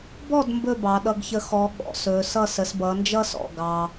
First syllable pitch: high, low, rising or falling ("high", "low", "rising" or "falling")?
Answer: falling